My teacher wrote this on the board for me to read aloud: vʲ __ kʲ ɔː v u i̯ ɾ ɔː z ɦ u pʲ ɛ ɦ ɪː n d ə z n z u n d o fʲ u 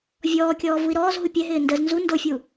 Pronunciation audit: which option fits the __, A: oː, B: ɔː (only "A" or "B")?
B